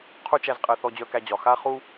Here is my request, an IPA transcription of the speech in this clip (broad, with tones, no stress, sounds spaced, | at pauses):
qʰ u˥ t͡ʃ æ˧ z qʼ ɛ˧ θ ɔ˧ d͡ʑ œ˧ k æ˧ d͡ʑ ɒ˩ x a˥ χ u˥